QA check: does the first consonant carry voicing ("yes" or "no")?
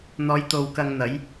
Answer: yes